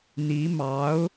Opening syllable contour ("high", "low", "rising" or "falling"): rising